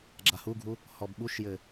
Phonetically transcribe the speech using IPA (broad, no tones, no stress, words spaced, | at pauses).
ɡ͡ǁahuɡʱu | hɔbɓuʃjɘ